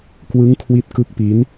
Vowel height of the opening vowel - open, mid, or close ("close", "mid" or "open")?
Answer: close